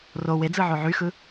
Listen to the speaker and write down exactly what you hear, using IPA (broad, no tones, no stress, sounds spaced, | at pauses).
r o w e d͡z ɯ ʕ o ʕ y x ɯ